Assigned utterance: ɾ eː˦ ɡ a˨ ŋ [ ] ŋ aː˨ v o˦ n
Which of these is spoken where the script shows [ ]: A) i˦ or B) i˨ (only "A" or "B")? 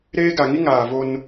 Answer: A